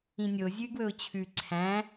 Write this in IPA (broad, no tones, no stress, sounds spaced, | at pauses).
ĩ nʲ o zʲ ʉ ɡ w ɵ ʊ̯ t͡ɕʰ ʉ ǀʰ æ̃